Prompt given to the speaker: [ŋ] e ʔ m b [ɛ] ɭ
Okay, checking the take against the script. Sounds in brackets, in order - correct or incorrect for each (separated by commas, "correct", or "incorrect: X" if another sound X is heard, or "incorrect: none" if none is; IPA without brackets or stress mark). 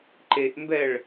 incorrect: ǃ, correct